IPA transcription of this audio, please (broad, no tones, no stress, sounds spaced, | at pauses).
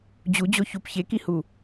d͡ʑ u d͡ʑ o ç u p ç e k i h u